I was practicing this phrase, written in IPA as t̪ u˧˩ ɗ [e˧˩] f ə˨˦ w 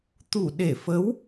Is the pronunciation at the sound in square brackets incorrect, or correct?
correct